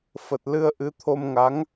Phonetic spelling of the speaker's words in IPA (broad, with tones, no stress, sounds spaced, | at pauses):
f ə˨˩ t̚ l ɨ˧ ə̯ ʔ ɨ˨˦ t̪ʰ o˧ m ŋ a˨˦ ŋ